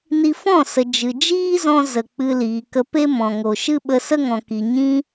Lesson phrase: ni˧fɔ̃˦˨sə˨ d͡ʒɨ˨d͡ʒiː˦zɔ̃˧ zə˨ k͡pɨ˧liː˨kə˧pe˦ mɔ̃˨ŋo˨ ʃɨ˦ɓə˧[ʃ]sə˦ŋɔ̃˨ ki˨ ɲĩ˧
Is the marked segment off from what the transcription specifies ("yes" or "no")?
yes